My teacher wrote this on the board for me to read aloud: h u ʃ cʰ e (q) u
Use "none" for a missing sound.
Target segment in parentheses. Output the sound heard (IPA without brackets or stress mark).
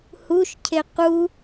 q